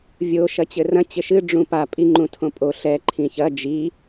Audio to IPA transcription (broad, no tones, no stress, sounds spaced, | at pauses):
vʲ o ʃ ɐ t͡ɕ ɘ r ɐ̃ t͡ɕ ɘ ʃ ɨ ɖ͡ʐ ũ p a pʼ i ŋ͡ǃ ũ tʰ õ pʼ o ɬ ɛ ǃʰ ĩ ç ɐ d͡ʒ i